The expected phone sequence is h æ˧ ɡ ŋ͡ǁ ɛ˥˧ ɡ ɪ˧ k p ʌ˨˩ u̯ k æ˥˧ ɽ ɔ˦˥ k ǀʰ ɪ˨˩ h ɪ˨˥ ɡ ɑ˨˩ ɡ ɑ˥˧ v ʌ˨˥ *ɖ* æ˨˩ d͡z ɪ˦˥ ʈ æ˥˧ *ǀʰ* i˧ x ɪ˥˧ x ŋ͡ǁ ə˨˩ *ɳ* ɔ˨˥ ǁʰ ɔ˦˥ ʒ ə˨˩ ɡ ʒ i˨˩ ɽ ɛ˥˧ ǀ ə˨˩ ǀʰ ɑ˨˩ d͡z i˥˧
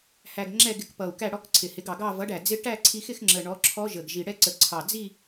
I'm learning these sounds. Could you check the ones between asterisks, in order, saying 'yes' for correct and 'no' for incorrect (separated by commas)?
yes, yes, yes